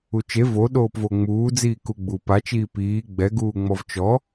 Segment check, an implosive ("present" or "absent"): present